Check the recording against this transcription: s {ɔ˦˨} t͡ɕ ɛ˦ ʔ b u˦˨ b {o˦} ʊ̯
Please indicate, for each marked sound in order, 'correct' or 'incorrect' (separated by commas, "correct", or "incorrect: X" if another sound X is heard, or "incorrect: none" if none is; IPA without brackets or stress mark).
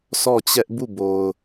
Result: correct, incorrect: o˨